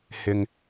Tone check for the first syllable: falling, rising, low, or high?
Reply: low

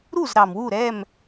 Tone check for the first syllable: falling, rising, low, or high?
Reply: falling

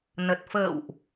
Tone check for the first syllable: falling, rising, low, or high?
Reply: low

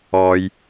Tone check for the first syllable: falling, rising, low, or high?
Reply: low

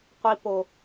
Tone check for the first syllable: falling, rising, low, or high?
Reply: high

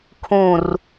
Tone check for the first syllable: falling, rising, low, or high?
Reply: falling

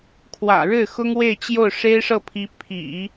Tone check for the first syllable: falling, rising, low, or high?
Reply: low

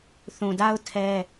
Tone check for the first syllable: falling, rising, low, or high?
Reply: low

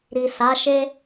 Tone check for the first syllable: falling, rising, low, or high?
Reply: low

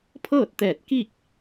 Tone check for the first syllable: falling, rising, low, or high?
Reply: falling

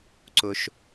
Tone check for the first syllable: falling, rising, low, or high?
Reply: low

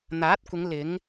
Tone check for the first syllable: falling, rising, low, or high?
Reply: rising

